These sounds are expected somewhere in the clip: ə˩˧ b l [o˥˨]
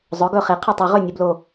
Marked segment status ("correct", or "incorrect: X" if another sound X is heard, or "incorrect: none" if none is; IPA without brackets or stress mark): incorrect: o˨˩